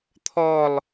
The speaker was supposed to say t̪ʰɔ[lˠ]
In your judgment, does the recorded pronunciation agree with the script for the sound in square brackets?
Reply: yes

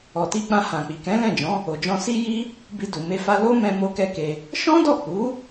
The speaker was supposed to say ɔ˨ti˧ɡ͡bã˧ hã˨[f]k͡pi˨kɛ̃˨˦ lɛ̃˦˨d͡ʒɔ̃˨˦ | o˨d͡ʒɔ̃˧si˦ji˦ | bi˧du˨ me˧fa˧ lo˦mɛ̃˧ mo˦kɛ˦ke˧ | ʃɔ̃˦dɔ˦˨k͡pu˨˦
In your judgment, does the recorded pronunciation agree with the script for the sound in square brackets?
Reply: no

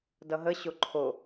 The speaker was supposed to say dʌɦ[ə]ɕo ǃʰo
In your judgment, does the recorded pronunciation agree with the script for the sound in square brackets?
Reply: yes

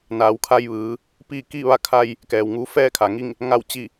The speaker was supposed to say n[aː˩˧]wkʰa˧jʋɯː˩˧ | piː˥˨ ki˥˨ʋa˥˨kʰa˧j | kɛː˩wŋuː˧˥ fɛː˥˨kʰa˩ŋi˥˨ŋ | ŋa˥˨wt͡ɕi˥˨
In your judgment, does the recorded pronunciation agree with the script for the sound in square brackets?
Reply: yes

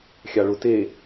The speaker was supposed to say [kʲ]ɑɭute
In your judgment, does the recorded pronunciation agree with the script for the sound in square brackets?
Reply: no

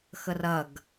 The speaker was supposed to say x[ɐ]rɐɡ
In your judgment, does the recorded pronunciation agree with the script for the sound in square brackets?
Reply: no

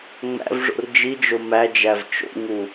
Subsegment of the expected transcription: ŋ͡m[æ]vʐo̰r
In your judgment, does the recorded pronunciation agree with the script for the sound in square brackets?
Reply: no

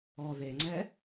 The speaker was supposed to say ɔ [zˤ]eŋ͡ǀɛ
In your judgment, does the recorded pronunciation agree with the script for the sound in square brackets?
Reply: no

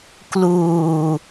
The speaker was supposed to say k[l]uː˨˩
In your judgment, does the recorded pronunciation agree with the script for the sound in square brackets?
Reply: yes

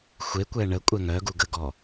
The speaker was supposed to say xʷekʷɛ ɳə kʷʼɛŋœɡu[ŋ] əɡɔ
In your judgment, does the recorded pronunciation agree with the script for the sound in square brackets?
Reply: no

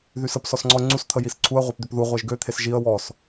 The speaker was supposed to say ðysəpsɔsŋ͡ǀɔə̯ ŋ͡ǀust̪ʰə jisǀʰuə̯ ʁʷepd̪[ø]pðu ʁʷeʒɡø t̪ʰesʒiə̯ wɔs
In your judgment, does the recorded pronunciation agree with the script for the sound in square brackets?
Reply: yes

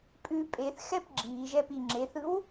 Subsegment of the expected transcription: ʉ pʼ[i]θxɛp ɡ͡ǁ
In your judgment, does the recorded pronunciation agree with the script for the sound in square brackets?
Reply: no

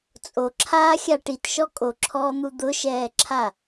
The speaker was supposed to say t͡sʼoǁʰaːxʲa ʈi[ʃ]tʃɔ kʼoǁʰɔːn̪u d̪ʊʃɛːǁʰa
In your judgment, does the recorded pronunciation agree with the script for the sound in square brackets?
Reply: no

